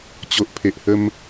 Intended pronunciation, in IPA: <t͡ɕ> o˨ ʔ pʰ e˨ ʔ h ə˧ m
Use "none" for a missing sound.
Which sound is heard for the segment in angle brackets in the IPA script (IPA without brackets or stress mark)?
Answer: t͡ɕ